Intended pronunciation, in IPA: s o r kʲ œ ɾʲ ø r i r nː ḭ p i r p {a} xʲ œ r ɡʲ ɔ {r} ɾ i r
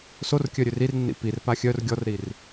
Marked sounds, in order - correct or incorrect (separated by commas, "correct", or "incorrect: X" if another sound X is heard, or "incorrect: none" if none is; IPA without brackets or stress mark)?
correct, correct